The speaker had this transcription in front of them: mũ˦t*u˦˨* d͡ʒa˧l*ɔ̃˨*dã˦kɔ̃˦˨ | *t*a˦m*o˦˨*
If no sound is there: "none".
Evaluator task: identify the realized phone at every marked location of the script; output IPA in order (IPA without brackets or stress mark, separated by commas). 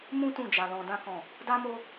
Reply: ũ˦˨, ɔ̃˧, d, o˦